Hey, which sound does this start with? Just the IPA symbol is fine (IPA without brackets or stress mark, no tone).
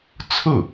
t͡sʰ